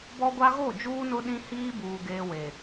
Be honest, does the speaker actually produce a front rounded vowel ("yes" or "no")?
no